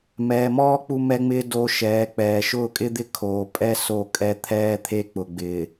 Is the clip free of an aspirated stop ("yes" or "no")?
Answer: no